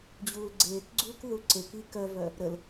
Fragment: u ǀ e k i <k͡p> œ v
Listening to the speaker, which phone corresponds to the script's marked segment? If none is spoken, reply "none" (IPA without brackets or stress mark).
k